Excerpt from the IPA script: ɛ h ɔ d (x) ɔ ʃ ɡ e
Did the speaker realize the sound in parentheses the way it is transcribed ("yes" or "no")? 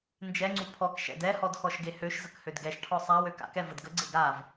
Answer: yes